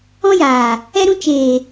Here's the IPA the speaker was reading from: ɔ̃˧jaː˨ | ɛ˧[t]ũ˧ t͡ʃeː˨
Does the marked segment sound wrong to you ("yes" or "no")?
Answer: yes